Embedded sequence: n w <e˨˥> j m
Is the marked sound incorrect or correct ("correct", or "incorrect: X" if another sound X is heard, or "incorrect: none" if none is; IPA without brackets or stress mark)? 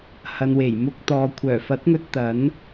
incorrect: e˨˩